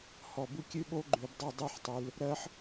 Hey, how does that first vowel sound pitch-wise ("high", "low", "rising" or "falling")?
low